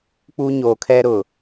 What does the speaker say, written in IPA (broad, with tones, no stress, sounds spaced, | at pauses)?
k͡p u˦ ɲ o˨ kʰ ɛ˦ ɾ ʊ˨